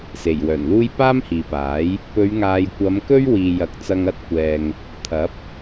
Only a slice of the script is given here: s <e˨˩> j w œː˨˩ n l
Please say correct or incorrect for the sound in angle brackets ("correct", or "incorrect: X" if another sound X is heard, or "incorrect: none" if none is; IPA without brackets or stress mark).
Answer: correct